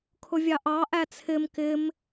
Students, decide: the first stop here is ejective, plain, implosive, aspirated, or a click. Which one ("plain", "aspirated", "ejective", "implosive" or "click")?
aspirated